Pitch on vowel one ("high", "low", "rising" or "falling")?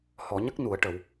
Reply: low